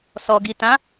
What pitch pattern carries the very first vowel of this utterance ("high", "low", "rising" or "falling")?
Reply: low